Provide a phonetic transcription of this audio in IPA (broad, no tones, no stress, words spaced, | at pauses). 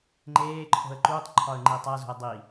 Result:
ŋ͡ǃeː ǃʰo̤ə̯ǃuːtˤǃʰɒə̯ ŋ͡ǃitˤæzo̤ə̯ dˤi